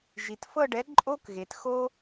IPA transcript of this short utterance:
ʒi˩tfɤ˥˧ɖɛ˨˥ǃʼo˥k ɣe˩txo˥

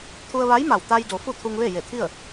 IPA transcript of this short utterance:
t̪ʰu˧ə̯ʋa˧˥jma˧˩w t̪a˧jdo˩˧ fu˥˨t̪ʰu˧ŋʋe˥˨ je˧˩t̪ʰi˥˨ə̯

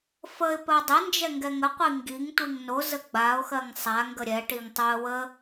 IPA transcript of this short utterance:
fəɪ̯ pɜdˤɪnd͡ʒɛ ŋɡɛŋəqʷi ŋɡiŋ tʷiŋnozə ɡ͡baʊ̯xɜŋ sˤaŋɡə ɾʲɛʈiŋ tˤoə̯ wə

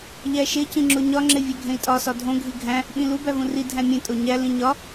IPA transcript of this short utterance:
ʎæʃe cĩŋ͡ǁoɲɒ ŋ͡ǁevʲæɡʱẽi̯tʼɒ sɒdʱõ ɡʱiɡʱæ̃ | ɓĩlu bævũri dʱæ̃mʲẽ tʼoɲæ lĩɲɒ

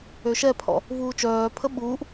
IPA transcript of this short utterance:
øʃɛpʰɔ̰ | vuːt͡ʃœːpʰə ɓuːʔ

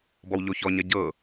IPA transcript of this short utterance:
bɔwʎoçɔ ɲɐɟɤ

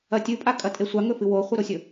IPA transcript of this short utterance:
ɐtʲɨpʼa kʼɐtʼesʷa ŋɵfɨwoχʷɨ ɾosʲɵ

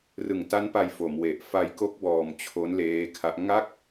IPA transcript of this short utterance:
rɯ˨˩ŋta˦˥npa˧j fo˩˦mwe˨˩ʔ fa˧jko˦˥k̚ bɔː˧mt͡ɕʰo˦˥n leː˦˥kʰa˦˥ʔ ŋa˥˩k̚

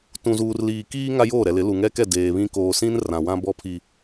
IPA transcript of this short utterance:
tũ˨zuː˨rliː˨kiː˦ ŋa˦joː˦˨ɾɛ˨ lɪ˨˦lu˨ ŋɛ˦kɛ˦˨ deː˨βĩ˦ koː˨sĩ˦n rã˨wã˦bɔ˦ pʰi˦

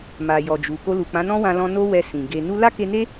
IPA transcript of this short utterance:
ma˨jɔ˨d͡ʒu˨ ko˧lu˨k͡pã˨˦ nɔ̃˦wã˧lɔ̃˧ no˦wɛ˧ sĩ˨ɡe˧ nu˧la˦ke˧ne˦

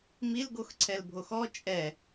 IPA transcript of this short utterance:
milɡoxǀʰɛlbʱox ɔ t͡ʃʼɛ

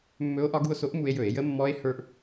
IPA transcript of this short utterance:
mːɵ˧˥o̯ʔɒ˧˥ɡu˧o̯so˧˥ʔ mu˧e̯jɵ˧˩˧e̯ jə˧˥mːɔ˧˥e̯hə˞˧ʔ

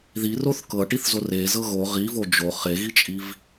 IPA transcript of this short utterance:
ðiroθ kɤʈiθzo rezɤ ɣo ʁivo d͡ʒo χeɣit͡ʃʼiv

